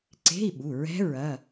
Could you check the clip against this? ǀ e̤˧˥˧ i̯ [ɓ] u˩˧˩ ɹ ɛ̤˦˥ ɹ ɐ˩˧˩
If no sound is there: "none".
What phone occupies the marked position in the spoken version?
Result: ɓ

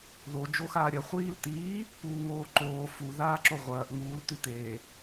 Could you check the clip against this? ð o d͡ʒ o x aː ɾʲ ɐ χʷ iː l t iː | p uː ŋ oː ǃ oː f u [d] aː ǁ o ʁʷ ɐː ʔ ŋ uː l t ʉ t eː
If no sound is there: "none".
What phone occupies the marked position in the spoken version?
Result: ð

